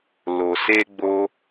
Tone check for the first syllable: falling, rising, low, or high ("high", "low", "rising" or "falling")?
low